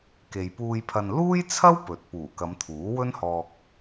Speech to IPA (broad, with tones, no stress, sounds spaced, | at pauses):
k e˨ j p uː˧ j pʰ ɐ˧ n l uː˥ j t͡sʰ ɐ˥ w p ɵ˨ t̚ p uː˨˩ k ɐ˨˧ m t̪ʰ uː˨˥ w ɵ˥ n h ɔː˧ k̚